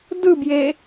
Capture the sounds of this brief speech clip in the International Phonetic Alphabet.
d ɯ b j e

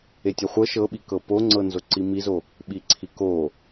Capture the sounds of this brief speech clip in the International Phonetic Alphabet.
e tʲ ɛ χʷ ɤ ʃ ɤ ɓ i k ɤ p o ŋ͡ǀ ɤ n z o ǀ i m i z o | ɓ i ǀʰ i k o

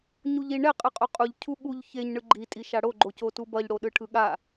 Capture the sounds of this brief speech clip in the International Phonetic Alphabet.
ɲ u ʎ i ɳ ɛ qʼ ɯ qʼ o qʼ u ʎ cʰ u ɠ u ʎ ç e ɲ ɳ ɯ ɡ͡ǃ i tʼ i ʃ a ɽ o ɡ͡ǃ o c o t u b ʌ ʎ ɽ o ɗ ɯ ʈʰ ɯ ɠ a

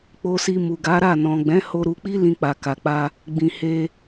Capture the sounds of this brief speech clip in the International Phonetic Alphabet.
k͡p o˧ s i˧ m u˨ ɡ a˨˦ ɾ a˦˨ n ɔ̃˨ ɡ͡b ɛ̃˨˦ h o˧ ɾ u˧ k͡p i˦ l ĩ˧ k͡p a˨ k a˨ k͡p a˧ | ɡ͡b ĩ˨ h e˧

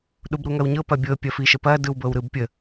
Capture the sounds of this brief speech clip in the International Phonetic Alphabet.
ɗ u b ɾ u ŋ ɐ w ɲ ɤ p ɐ bʲ ɤ pʲ ɐ f i ʃ ə p ɐ d ɯ w b ɤ w ɾ ɯ b pʲ ə

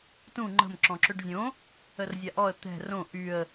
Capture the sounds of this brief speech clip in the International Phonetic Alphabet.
t ũ ŋ͡ǃ ə̤ m ǁ ɔ̃ ǁ ø ɖ zʲ õ | ə r zʲ a ʔ ɔ ə̯ t̪ ɛ̤ r õ ʔ y ə̯

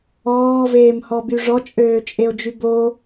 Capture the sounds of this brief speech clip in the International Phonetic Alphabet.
ɔː v eː m h ɔ b y ʐ ɔ t͡ʃʼ øː t͡ʃʼ e o̯ d͡ʒ y b o

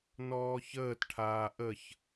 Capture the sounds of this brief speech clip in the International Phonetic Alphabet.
n ɔː ç əː t ʈʰ aː ʔ ə ç

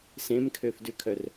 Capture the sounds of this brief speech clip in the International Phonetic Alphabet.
s ẽ m kʰ ø f d ʉ kʰ œ r

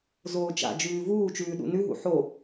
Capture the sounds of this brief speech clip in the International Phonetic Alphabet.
z oː t͡ʃ a̰ d͡ʒ ʉː v uː t͡ʃ ʉː ɗ ṵ n ʉ ɦ ṵ ħ o

